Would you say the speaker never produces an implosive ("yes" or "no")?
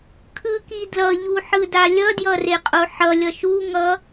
yes